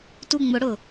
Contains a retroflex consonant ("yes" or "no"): yes